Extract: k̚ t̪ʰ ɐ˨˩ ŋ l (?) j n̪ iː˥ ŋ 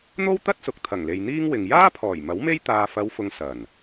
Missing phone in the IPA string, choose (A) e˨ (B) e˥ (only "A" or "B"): A